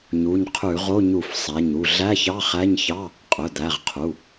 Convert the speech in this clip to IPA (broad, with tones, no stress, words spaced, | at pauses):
ɲu˩˧˩ɲqʰʉ˧˩˧ʁo˧˥˧ ɲu˧˩˧fsˤæ˩˧˩ɲu˩˧˩ ɮæ˧˥˧çɑ˧˥˧χæ˧˥˧ɲçɑ˧˥˧ | qʼɵ˩˧˩d̪æ˩˧˩ʁqʰu˩˧˩